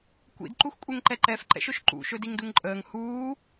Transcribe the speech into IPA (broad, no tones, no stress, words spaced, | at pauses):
kʷḭdǃuxkʷʼeŋǃɛ ǃɛfǃɛ̰ʃɵʃ ǃṵʃɵdiŋduŋ ǃʼəːŋ huː